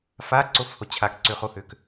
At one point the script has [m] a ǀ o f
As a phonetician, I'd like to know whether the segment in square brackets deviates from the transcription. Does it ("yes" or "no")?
yes